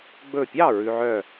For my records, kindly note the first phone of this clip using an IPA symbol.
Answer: ɡ͡b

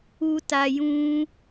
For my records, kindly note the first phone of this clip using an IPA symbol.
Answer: u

